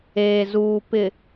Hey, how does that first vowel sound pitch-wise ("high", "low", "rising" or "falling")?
low